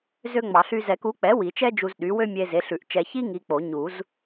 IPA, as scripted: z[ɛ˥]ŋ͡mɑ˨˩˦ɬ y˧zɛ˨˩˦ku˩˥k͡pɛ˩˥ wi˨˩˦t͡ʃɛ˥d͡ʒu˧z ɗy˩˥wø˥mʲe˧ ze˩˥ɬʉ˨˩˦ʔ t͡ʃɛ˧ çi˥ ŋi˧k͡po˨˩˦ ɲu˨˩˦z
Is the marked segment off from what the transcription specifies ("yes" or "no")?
yes